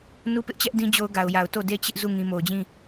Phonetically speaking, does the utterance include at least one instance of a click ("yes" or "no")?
no